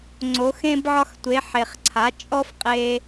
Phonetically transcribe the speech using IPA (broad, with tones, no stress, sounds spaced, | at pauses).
ŋ͡ǀ o˩˧ x ẽ˧ b ʕ ɒ˧ x tʷ e˩˧ ħ e˩ χ ǀʰ a˩˧ t͡ʃʼ ɔ˥ f qʼ e˧